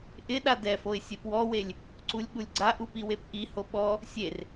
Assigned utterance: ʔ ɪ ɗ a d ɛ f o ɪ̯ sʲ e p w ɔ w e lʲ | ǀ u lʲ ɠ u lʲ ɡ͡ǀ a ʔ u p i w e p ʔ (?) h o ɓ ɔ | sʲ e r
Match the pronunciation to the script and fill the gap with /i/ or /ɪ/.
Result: i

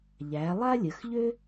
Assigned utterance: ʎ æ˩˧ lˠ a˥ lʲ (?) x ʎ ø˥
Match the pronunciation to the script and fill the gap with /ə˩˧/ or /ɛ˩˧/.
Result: ə˩˧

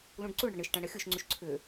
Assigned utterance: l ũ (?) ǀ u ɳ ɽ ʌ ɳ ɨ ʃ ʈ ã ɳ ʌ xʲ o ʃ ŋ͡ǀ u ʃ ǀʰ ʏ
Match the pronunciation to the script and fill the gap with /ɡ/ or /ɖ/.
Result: ɖ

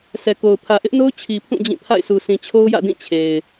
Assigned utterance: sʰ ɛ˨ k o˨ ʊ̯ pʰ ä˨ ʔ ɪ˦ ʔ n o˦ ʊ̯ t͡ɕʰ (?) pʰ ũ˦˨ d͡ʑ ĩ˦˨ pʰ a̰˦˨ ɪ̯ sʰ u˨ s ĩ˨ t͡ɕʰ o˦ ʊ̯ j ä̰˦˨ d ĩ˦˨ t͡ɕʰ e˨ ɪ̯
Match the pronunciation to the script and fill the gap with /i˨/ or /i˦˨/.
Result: i˨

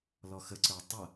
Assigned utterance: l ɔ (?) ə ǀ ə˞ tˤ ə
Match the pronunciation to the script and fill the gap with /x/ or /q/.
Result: x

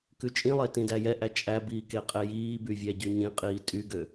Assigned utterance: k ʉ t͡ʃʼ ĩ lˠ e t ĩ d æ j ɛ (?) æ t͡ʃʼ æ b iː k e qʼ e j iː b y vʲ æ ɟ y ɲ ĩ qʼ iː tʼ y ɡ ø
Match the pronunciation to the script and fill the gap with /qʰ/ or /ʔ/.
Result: ʔ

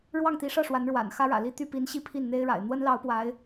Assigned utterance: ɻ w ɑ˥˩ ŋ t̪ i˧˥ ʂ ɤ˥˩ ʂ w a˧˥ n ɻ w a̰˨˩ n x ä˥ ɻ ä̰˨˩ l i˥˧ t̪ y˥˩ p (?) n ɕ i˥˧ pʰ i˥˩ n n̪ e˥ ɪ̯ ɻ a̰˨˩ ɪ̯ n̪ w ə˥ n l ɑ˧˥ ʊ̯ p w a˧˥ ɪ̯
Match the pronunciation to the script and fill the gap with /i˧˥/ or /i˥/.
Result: i˧˥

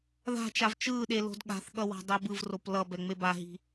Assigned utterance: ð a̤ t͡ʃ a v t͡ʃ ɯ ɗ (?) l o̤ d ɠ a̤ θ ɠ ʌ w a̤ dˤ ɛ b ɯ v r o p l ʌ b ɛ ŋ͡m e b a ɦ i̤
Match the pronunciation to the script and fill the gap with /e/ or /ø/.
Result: e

